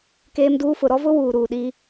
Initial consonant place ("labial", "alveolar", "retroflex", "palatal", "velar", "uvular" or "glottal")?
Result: velar